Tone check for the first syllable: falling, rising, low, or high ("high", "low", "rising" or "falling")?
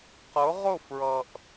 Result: rising